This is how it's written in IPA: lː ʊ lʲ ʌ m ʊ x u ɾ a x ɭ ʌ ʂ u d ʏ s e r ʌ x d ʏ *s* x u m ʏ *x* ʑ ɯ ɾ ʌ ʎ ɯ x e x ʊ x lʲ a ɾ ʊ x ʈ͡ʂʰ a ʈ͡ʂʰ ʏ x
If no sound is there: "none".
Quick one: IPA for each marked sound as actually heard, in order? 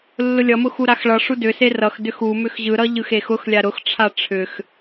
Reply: none, x

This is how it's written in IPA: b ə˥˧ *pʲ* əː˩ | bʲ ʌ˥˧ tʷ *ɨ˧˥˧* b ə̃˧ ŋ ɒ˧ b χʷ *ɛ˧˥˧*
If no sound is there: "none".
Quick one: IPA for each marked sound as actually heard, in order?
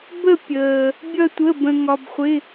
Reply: pʲ, ə˧˥˧, ɪ˧˥˧

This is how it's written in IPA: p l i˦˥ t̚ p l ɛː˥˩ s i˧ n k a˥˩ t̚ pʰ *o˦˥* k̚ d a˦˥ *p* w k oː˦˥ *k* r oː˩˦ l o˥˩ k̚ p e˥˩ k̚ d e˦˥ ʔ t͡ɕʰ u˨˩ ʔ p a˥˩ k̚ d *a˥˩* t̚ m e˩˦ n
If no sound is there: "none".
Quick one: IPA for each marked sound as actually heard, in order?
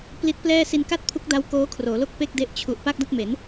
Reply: u˦˥, none, kʰ, a˥˩

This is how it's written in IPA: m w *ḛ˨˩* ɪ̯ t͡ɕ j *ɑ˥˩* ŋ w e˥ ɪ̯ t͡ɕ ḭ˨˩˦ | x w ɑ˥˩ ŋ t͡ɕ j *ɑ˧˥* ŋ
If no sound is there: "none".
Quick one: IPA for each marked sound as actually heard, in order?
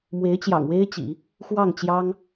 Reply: e˧˥, ɑ̰˨˩, ɑ˥

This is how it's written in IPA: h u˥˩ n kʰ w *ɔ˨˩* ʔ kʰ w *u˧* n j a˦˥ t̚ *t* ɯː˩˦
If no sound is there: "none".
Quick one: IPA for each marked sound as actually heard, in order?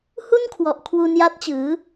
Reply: ɔ˨˩, u˧, t͡ɕ

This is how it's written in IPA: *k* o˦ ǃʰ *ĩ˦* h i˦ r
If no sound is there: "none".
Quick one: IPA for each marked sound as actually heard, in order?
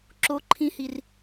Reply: ǁ, ĩ˦

